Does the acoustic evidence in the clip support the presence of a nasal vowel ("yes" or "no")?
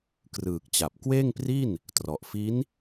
no